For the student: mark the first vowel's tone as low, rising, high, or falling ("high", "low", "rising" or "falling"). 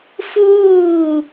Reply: falling